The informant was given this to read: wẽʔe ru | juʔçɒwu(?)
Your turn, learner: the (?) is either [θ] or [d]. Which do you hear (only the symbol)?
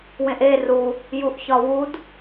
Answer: d